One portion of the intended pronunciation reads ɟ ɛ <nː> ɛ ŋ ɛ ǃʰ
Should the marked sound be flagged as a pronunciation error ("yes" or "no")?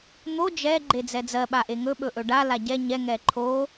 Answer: yes